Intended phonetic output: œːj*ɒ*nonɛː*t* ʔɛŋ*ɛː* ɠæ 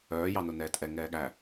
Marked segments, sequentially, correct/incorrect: incorrect, correct, correct

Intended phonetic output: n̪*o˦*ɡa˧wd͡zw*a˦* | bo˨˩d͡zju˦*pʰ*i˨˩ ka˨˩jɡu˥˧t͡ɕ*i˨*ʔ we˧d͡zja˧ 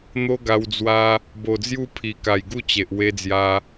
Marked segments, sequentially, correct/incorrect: correct, correct, correct, incorrect

